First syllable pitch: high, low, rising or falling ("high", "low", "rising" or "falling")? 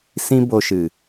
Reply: high